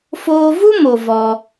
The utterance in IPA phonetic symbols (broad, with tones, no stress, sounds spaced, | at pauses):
f oː˧ v u˦ m o˨ v ɔ˧